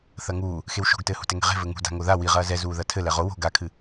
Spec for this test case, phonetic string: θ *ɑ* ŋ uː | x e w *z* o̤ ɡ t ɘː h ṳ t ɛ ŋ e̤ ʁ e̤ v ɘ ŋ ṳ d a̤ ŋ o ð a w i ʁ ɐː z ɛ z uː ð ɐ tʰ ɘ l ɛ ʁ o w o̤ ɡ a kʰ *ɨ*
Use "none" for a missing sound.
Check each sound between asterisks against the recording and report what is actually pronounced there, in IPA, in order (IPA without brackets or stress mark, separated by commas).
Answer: ɐ, ʃ, ɨ